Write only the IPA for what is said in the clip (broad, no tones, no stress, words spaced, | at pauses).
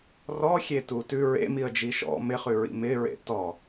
rɔxʲetu tʉ ɹḛmiə̯d͡ʒi ʃɔ̰ mɪχʉɹḭ mɪɹḛ tɔ